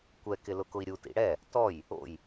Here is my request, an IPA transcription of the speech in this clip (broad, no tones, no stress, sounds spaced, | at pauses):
kʷ ɛ k ɪ l ʊ k ʊ i̯ ɾʲ u t ḭ ɽ ɛ | t ɔ j | o̰ j